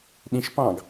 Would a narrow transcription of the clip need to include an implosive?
yes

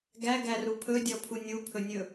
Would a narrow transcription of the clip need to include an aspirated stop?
yes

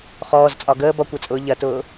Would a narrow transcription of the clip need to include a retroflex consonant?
no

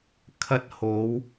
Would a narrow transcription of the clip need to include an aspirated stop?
yes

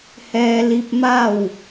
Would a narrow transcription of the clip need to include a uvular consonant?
no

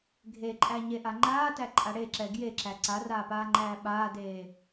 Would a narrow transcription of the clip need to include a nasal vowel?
no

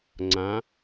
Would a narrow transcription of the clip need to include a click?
yes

